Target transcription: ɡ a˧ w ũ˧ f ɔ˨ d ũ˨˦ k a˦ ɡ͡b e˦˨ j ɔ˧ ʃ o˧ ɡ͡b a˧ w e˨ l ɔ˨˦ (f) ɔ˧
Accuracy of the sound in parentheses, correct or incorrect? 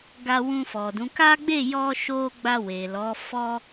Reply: correct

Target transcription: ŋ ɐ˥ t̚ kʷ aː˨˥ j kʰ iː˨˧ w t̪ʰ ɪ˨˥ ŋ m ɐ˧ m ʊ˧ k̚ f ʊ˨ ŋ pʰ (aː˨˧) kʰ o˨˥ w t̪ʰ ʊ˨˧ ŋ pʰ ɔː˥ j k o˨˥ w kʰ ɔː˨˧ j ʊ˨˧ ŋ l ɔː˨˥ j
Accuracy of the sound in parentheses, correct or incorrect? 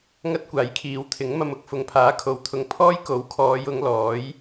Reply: incorrect: aː˨˥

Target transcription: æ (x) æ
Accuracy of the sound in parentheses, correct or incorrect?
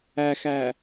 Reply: correct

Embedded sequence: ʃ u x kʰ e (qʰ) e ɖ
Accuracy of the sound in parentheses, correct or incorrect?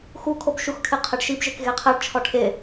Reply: correct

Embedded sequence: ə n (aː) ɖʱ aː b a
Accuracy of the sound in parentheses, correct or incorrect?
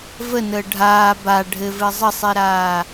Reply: incorrect: əː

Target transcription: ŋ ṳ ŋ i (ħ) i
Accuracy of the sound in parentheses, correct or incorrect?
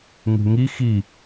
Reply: incorrect: x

